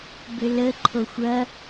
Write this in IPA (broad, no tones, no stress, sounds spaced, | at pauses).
b ʏ l ə ǃʰ o xʷ ɐ